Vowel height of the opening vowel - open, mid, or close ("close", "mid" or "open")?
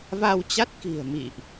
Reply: open